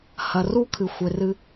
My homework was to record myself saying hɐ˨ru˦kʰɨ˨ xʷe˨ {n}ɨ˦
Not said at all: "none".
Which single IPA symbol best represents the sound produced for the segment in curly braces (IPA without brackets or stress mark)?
r